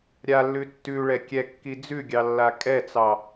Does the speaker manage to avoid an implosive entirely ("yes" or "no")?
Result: yes